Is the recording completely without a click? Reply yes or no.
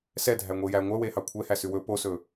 yes